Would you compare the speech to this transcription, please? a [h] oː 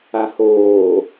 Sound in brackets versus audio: correct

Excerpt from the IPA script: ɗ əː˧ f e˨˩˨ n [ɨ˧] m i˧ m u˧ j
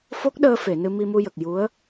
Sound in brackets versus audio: correct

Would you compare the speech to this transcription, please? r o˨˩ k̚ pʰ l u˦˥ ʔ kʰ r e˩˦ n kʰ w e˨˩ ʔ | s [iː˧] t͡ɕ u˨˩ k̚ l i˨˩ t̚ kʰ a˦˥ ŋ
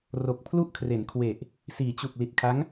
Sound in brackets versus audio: incorrect: iː˩˦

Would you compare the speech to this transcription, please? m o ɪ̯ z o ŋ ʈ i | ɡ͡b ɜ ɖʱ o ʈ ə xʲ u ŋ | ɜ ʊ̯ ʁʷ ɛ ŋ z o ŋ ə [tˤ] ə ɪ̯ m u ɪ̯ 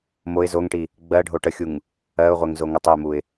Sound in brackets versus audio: correct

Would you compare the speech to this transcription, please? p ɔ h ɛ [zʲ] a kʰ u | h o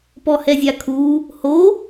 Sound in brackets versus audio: correct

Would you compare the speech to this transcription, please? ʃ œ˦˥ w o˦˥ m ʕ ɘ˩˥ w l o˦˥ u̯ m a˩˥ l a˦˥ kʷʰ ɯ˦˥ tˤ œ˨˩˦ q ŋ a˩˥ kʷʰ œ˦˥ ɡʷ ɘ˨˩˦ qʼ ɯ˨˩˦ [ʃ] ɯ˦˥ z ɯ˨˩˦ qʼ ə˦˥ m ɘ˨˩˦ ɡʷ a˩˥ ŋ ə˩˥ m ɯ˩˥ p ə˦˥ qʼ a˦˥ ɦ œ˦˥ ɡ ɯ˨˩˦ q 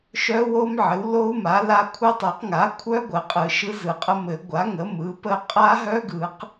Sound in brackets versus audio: correct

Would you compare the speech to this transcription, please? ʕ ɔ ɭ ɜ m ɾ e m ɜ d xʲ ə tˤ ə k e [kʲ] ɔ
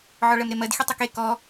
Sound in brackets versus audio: incorrect: k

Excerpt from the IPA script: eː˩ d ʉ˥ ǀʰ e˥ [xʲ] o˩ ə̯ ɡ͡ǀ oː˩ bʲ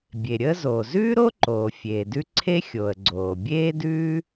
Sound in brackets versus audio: correct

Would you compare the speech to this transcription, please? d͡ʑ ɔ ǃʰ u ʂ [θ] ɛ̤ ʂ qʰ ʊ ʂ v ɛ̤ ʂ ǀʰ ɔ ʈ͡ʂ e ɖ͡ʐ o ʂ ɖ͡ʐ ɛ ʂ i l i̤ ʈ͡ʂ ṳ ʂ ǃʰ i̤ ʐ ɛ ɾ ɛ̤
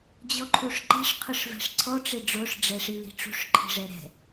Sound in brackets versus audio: incorrect: ǃ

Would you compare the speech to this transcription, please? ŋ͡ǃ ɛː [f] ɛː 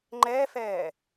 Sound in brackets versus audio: correct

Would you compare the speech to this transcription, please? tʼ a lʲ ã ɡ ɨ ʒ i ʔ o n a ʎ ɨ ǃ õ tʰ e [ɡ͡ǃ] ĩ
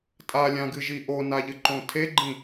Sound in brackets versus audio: correct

